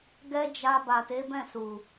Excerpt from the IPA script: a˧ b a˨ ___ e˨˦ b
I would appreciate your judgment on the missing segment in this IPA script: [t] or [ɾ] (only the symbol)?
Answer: t